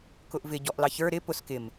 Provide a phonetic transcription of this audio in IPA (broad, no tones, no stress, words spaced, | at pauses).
kʊʔvɪ ɟɔʔlɑçə˞ ɾɪ pʊs kɪm